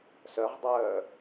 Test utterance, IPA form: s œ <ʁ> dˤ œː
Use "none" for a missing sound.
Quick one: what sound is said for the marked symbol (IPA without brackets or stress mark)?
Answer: ʁ